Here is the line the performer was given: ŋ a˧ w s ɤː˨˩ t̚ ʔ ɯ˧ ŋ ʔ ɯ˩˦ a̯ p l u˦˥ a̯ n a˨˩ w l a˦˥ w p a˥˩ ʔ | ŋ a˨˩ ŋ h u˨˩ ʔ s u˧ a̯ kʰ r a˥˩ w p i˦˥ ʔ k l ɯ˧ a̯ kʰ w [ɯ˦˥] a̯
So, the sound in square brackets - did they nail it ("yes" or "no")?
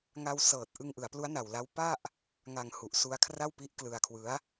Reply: yes